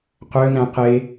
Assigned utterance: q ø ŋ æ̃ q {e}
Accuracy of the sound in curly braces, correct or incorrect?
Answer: correct